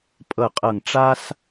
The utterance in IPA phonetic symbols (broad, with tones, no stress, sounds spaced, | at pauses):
pʼ ɤ˨˩ qʼ ɤ˨˩ ŋ ʈ͡ʂ a˧ s